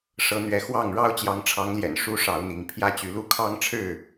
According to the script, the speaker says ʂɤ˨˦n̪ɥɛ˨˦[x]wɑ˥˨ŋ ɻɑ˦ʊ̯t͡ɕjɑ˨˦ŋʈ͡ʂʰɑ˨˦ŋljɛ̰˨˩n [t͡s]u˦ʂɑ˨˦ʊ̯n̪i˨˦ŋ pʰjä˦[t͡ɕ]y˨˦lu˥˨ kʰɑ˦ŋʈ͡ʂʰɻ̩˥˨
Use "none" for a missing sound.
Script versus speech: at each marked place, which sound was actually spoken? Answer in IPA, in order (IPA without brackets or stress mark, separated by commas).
x, ʂ, t͡ɕ